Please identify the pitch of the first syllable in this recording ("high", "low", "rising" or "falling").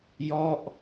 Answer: falling